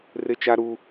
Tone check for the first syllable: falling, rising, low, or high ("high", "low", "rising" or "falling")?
high